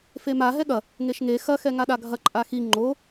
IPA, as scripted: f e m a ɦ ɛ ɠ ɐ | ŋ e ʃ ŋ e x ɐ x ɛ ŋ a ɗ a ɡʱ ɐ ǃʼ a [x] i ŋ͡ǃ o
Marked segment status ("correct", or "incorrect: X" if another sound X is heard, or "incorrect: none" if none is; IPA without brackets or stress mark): correct